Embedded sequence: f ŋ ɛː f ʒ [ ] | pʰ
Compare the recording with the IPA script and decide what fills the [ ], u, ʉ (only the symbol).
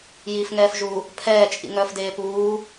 u